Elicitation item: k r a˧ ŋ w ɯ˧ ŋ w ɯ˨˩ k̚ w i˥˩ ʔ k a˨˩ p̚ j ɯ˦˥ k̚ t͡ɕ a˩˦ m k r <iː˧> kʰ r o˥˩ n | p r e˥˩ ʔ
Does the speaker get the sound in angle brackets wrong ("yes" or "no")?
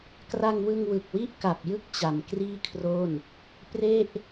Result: yes